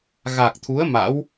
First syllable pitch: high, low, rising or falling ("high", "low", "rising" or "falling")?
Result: low